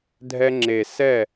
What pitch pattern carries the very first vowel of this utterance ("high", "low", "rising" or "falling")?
high